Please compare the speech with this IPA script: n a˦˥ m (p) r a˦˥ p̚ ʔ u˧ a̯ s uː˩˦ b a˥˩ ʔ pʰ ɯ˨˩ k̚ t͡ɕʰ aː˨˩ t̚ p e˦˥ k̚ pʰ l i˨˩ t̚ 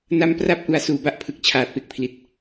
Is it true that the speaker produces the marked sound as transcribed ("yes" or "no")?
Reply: yes